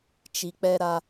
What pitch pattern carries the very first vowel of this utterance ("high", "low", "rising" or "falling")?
low